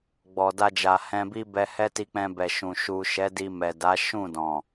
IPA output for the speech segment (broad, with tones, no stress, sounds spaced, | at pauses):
ɡ͡b ɔ˨ d a˧ d͡ʒ a˨ h ɛ̃˧ b i˦ b ɛ˧ h ɛ˦ t i˧ k͡p ɛ̃˧ b ɛ˨ ʃ ũ˨ ʃ u˨ ʃ ɛ˨˦ d i˧ m ɛ˨ d a˨˦ ʃ ũ˦˨ d ɔ̃˨